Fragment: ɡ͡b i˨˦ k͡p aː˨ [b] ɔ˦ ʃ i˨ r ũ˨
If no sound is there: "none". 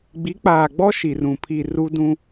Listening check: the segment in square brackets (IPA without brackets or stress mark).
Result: ɡ͡b